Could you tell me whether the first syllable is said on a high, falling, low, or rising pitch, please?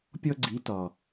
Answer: high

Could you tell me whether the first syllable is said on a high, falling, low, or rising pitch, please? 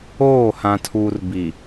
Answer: falling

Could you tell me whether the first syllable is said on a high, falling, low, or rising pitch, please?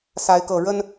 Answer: rising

